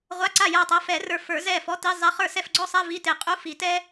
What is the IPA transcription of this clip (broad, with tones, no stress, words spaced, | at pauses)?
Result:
ʁʷa˧˥˧ǀa˥˩ ja˧˩tˤa˨˦fɛ˨˩˦rə˞˧˩ fə˞˨˩˦zɛ˥˩ fɔ˧˥˧ti˧˥˧zˤɛ˧˥˧ χə˞˥˩sɛ˥˩fɡ͡ǀɔ˥sˤɛ˧˥˧ vi˧˥˧te˧˩qʼu˧˥˧ fi˨˩˦tɛ˥